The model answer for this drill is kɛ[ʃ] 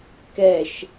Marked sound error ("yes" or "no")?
no